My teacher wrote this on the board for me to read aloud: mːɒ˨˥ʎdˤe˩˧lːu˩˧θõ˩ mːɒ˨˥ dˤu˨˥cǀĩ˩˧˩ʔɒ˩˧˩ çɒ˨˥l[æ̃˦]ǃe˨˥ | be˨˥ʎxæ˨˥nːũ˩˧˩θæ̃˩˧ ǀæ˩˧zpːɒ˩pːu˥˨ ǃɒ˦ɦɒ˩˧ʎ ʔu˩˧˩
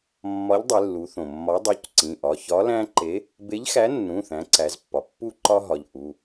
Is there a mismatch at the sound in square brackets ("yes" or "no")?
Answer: no